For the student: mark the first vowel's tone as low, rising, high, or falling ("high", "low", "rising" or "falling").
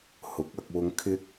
rising